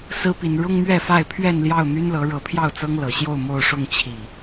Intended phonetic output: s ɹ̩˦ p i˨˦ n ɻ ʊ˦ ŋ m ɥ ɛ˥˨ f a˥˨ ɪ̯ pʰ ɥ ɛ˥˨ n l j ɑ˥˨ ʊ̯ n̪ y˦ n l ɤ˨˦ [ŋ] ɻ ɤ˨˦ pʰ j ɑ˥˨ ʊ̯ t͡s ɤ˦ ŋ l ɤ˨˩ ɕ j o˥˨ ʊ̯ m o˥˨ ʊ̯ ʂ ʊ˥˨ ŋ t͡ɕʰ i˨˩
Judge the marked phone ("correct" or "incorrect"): incorrect